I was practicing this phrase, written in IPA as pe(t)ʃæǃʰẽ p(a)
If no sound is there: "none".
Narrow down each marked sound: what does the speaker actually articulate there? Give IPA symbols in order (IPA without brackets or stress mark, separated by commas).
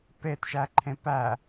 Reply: t, æ